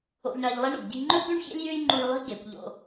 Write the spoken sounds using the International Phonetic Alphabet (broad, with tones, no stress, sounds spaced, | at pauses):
o̰˧ ʎ ɳ ɐ˧ ʎ lˠ i˥ ɳ o̰˩ ɡ ɟ i̤˧ ŋ͡ǃ ɵ˥ b ʉ˥ ɳ ç ḛ˥ lʲ j ʉ˥ j ŋ͡ǃ u˧ j lˠ i̤˥ ɡ e˩ kʷ ʎ o̰˧